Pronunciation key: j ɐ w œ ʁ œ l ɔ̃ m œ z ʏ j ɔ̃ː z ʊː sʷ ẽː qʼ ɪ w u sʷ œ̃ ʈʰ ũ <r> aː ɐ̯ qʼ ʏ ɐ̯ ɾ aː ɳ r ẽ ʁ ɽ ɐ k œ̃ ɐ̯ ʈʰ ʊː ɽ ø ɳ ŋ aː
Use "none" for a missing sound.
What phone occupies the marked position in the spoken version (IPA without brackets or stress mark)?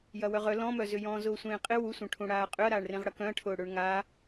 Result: ɽ